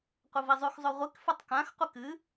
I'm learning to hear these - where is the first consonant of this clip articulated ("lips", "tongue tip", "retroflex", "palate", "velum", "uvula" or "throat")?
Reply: uvula